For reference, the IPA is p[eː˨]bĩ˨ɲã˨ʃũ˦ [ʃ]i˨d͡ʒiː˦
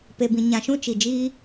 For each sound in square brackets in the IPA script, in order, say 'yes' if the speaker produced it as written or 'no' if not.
no, no

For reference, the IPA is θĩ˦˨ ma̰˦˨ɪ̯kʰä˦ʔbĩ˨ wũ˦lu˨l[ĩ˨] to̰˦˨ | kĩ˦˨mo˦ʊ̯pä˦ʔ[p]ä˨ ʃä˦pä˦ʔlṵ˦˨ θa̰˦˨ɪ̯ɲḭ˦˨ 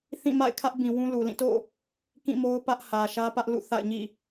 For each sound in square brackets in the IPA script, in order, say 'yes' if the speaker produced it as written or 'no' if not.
no, no

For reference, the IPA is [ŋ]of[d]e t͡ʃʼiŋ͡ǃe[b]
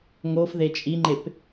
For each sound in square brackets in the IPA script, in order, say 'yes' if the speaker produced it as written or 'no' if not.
yes, no, no

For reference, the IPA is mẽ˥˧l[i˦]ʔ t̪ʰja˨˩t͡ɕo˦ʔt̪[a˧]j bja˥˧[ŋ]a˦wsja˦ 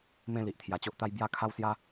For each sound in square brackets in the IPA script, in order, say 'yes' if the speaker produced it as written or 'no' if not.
no, no, no

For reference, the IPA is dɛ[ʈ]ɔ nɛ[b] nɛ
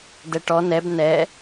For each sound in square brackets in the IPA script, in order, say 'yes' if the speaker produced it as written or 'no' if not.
yes, yes

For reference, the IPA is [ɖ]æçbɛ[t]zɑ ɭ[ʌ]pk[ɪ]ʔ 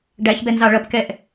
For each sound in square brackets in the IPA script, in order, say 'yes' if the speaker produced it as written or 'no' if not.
yes, no, yes, no

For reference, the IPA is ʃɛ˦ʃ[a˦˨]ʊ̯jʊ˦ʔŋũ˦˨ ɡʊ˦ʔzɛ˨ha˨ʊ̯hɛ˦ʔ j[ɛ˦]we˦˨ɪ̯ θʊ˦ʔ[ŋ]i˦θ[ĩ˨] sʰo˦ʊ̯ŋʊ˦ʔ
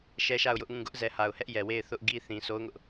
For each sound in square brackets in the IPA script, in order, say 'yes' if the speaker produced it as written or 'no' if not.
yes, no, no, yes

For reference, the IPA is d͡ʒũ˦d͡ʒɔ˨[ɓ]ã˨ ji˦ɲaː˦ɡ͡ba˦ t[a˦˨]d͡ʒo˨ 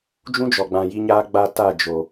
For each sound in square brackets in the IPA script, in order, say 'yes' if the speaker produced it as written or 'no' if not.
no, yes

